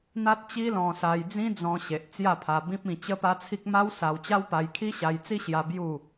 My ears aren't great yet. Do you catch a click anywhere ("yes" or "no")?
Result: no